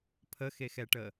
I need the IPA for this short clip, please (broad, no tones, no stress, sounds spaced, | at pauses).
pʰ ə x e x ɛ ʈ ə